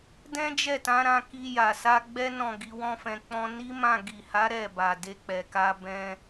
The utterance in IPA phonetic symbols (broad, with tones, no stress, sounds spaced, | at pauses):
d ɛ̃˦ d͡ʒ ɛ˦˨ t ã˨˦ ɾ ã˧ k i˧ j a˨ s a˧ ɡ͡b ɛ˦ n ɔ̃˦˨ ɡ i˨˦ w ɔ̃˦ f ɛ̃˧ k͡p ɔ̃˧ n i˦ m ã˦˨ ɡ i˨ h a˨˦ ɾ ɛ˦˨ b a˨ d e˧ k͡p ɛ˨ k a˧ b ɛ̃˦